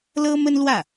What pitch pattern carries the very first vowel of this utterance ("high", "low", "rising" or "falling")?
high